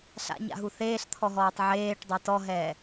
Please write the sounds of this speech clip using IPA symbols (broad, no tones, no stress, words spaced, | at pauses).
ɬa̰ɲa̰ɦu θeːɬt̪ʰɔɦɔːtˤ ʕeːʈdˤe tɔɦɛː